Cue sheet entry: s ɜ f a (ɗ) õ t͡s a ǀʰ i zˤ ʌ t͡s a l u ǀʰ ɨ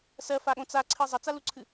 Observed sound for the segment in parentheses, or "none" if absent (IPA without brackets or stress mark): ɠ